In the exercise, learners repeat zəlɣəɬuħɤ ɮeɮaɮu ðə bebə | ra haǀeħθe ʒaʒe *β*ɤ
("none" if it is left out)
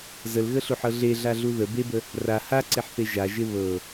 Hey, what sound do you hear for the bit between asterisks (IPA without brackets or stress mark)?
β